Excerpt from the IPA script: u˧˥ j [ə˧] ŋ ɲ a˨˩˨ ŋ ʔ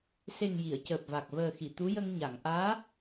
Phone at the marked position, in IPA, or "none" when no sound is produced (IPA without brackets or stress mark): ə˧